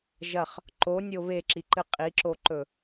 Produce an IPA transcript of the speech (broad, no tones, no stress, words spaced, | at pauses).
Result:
ʒɐχ | ǃonʲo βeǁiǃɨ qʼiǁoǃɵ